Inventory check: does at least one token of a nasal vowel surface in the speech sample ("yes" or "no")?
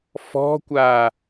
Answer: no